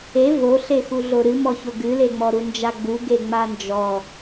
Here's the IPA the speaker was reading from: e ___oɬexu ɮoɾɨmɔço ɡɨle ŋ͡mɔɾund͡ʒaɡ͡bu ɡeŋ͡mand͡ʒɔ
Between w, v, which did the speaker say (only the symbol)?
v